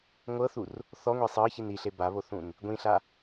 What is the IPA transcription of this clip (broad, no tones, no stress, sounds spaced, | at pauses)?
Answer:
ŋʷ ɤ θ u r | θ ɔ ŋʷ e sˤ ɤ ç i n i ɬ e b a β o θ ũ n | ɡʷ ĩ ɬ a